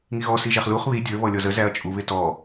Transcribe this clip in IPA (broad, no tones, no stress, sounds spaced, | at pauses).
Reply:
ŋ i ɣ ɔ s i ʒ æ χ l u χ β i dʲ ə˞ β ɔ lʲ ɔ z ə z æ ɐ̯ t͡ʃʼ u β ɪ t ɔ